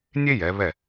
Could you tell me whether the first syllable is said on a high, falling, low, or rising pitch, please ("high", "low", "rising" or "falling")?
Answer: high